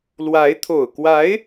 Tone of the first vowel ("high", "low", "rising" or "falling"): rising